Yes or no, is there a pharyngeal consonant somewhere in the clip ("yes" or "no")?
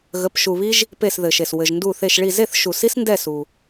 no